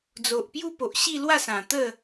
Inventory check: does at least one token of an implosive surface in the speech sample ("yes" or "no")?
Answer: no